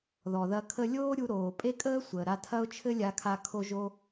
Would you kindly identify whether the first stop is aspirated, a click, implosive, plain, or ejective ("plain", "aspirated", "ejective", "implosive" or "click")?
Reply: aspirated